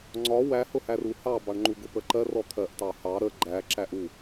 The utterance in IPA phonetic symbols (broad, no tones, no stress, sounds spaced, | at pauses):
ŋ͡ǀ ɒ w æ h ʊ h æ r u h ɑ b ɑ ɳ ŋ͡ǃ u ɡ ʊ p ə ǃ ɜ r ɔ t̪ʰ ɜ ʔ t ɑ h ɑ ɾ ə ɡ͡ǃ æ ǁ æ ʔ u